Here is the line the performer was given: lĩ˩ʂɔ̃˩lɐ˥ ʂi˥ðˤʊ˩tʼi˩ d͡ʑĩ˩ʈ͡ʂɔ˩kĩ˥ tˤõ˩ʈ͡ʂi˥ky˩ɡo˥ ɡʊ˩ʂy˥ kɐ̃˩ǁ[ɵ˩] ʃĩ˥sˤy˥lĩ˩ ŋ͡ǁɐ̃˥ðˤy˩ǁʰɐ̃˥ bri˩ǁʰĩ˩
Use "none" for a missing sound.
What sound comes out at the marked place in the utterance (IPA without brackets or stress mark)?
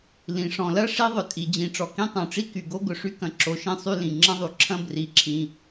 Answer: o˩